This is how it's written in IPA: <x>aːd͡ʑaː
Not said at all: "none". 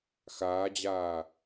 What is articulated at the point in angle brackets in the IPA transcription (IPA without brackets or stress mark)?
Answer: x